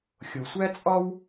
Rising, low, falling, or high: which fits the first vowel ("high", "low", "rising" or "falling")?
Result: low